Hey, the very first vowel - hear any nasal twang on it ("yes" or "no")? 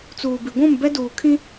no